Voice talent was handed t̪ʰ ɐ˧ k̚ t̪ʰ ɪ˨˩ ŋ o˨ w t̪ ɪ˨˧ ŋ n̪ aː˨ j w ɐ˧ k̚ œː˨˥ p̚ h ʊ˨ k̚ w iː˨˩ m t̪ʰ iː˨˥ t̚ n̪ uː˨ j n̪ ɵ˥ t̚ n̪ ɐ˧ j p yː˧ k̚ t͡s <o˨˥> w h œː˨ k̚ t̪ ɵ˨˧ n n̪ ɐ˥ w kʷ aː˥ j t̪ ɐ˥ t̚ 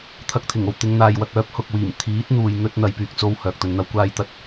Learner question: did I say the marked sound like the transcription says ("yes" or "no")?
no